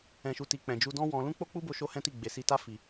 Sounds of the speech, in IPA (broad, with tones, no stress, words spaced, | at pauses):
ɛ̃˨ʃu˨ti˨ k͡pɛ̃˨d͡ʒu˧dɔ̃˦ wɔ̃˧ lũ˦k͡po˦k͡pu˦bo˧ ʃo˦hɛ̃˦ti˦˨ ɡ͡be˧si˦ ta˦fi˧